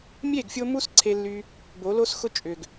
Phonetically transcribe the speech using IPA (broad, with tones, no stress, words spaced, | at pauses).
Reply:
mʲe˦˨ɡfʲo˧ mu˦sǀʰe˧lːy˧ | bo˨˦lo˦sxʊ˦ t͡ʃʼʏ˨ɡ